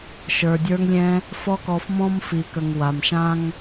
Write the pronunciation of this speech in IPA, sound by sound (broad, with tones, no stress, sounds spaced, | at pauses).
ʃ ə˞˨ dʲ ə˞˧ ŋ lʲ ɛ̃˧ | f ɔ˦ k ɔ˧ f m ɔ̃˦ m f i˨ k ə˨ ŋ w a˨ m ʃ ã˦ ŋ